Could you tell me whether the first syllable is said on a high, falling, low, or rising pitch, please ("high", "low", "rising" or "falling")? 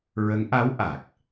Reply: rising